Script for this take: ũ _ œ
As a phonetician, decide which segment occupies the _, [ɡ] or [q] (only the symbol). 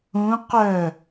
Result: q